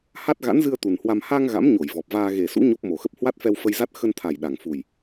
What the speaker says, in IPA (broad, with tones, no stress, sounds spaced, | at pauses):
h a˦˥ t̚ ɣ a̰˧˥ n z ɨ˧ ə̯ t̪ u˨˩ n h w a˧ m h a˧ ŋ ɣ a̰˧˥ m ɲ o˧˩ j v ɔ˨˩ p̚ v aː˧ ɣ e˨˩ s ṵ˧˥ ɲ o˦˥ p̚ m o˨˩ x ə˦˥ p̚ h w a˦˥ t̚ f ɛ˧ w f ə˧ j z a˦˥ t̚ x ə˧ n t̪ʰ a˨˩ j ɗ a˨˩ ŋ f u˨˩ j